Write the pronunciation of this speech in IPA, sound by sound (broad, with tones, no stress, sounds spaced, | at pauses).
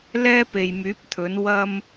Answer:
l ɛː˥ p e˨ j m yː˨˥ p̚ t̪ʰ ɵ˨˥ n w ɐ˥ m